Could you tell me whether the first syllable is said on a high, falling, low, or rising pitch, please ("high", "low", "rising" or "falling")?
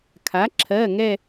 rising